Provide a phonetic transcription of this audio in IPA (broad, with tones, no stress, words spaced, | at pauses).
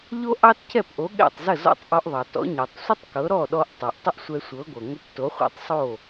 ʎo˥ʔɑ˥tcʰɛ˥˩pʔo˩˥ ɠɛ̰˥˩tˤzə˥˩ zɔ̰˥˩tˤʔɔ˧ʔðˤɑ˩ tɔ̰˩˥ɲɤ˩tˤsʷə˥tˤkɤ˩˥ ɾɔ˥˩ɗɔ˧ʔ tˤo˩ʔtˤə˥ʔsʷɛ˧sʷɤ˩˥ ɡʷɤ˩ ŋʷə˧pto˩˥χʷɛ̰˧tˤ sˤo˥˩